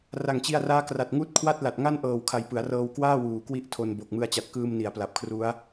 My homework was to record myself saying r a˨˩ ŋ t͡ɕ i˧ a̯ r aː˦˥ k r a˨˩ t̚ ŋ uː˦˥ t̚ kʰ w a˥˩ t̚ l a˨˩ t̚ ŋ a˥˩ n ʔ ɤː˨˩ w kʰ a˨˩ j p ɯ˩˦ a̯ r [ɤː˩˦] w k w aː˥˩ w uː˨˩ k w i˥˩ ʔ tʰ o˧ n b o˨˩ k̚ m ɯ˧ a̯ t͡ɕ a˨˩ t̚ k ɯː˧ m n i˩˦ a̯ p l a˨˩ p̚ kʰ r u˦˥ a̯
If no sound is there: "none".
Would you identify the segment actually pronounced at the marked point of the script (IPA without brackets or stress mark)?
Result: ɤː˧